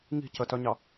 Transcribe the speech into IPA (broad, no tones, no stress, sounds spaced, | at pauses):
ŋ i̤ c ə t œ ɲ ɑ